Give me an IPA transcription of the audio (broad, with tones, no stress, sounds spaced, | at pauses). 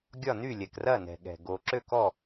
ɡʲ ɒ˥˨ n y˥˨ lʲ ɛ˨ k r ɐ˥˨ n ɛ̤˨ ɠ ɛ̤˨ ɡ o˨ ǁ ø˥˨ k ɔ˥˨